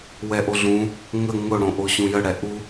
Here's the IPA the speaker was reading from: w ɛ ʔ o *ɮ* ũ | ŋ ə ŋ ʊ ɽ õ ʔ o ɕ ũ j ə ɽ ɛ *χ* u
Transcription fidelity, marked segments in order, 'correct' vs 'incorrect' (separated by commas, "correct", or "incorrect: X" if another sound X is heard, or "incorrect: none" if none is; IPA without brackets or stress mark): correct, incorrect: ʔ